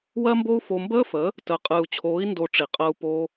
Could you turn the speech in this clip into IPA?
w ɜ˦ m b o˦ u̯ f o˧ m b əː˦ f ə˨˦ | t əː˨ qʼ ɨː˨ u̯ t͡ɕʰ oː˨˦ i̯ n d o˧ ʈ͡ʂ i˨ qʼ əː˧ u̯ p o˧

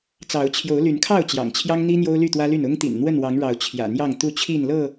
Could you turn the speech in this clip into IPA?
t͡s ɑ˨˦ ʊ̯ t͡ɕʰ j o˨˦ ʊ̯ l y˨˦ n kʰ ɑ˥˨ ʊ̯ t͡ɕ j ɑ̰˨˩ ŋ t͡ɕʰ j ɑ˦ ŋ n̪ i˦ n̪ j o˦ ʊ̯ l y˥˨ t̪ w ä˦ l y˥˨ n ʊ˦ ŋ t̪ ḭ˨˩ n n̪ w ə˥˨ n w ɑ˨˦ ŋ ɻ ɑ˨˦ ʊ̯ t͡ɕʰ j ä̰˨˩ n̪ j ɑ˥˨ ŋ t̪ u˥˨ t͡ɕʰ i˥˨ n l ɤ˥˨

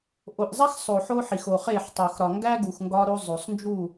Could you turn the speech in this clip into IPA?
ʔ o˨ ʔ zˤ æ˦ x sˤ o˨ ħ o˦ ħ i˨ x o˨ χ e˦˨ ħ tˤ u˨ x ɾ ɒ˨ ŋ ɡ æ˦ ɡ u˨ x ŋ ɡ ɒ˦ ɾ o˦ zˤ o˨ sˤ n d͡ʒ u˦˨

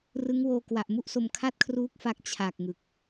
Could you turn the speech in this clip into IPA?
r ɯ˦˥ ŋ w oː˧ k w a˨˩ ʔ m u˥˩ ʔ s o˧ m kʰ a˥˩ t̚ kʰ r uː˦˥ k̚ f a˦˥ k̚ t͡ɕʰ a˨˩ k̚ ŋ ɯ˨˩ k̚

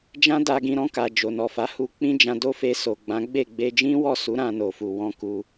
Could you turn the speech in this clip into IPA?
d͡ʒ ã˦ d a˧ ɡ ĩ˧ ɾ ɔ̃˧ k a˨ d͡ʒ o˨ n ɔ˨ f a˨˦ h u˧ k͡p ĩ˦ d͡ʒ ã˧ d o˦ f e˧ s o˨ ɡ͡b ã˨˦ ɡ͡b e˦˨ ɡ͡b e˧ d͡ʒ ĩ˦ w ɔ˦˨ s u˨˦ ɾ ã˧ n o˨ f u˨ w ɔ̃˧ k u˧

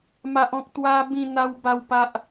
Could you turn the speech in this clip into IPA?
m a˦ ʔ ɔ̃˦ k̚ t̪ w a˦ b ĩ˥˧ n̪ a˦ w b a˥˧ w p a˦ ʔ

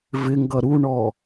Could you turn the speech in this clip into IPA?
v ɪ ŋ ɡ ʌ ɾ u ɳ ɔ

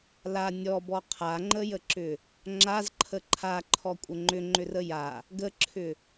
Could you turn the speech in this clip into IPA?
l a nʲ ɔ b ɔ qʰ a ŋ͡ǃ ə j ə ǁ ʏ | ŋ͡ǁ a z ǃʰ ə ǃʰ a ǃʰ ɔ kʷʼ ə ŋ͡ǃ ʏ ŋ͡ǃ ʏ r ə j a | ɡ ə ǁʰ ʏ

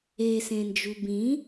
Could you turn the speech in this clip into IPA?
e s ẽ n d͡ʒ u b ĩ

